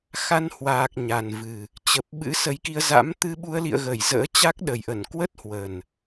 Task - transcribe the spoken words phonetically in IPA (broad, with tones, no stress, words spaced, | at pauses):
xa˧nhwaː˨˩k̚ ɲa˨˩nvɨ˨˩ | t͡ɕə˨˩p̚ ɓɨ̰˧˥sə˨˦jki˧ə̯ za̰˧˥mt̪ɨ˧ ɓu˧ə̯lḭ˧˨ə̯ɣə˧˩j zə̰ː˧˥ t͡ɕa˦˥k̚ɗə˨˩jʔə˧˩n kwə˦˥t̚hwə˨˩n